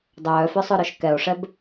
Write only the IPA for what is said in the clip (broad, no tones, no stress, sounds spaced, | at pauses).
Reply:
dˤ œː f œ sˤ ø ɾ œ ʃ k ɛ o̯ ʂ ɛ b